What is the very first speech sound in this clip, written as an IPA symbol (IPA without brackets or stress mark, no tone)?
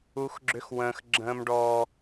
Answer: u